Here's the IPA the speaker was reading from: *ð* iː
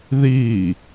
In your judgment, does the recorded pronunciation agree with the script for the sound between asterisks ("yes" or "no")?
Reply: yes